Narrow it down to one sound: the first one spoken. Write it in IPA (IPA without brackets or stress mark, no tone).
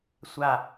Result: sʷ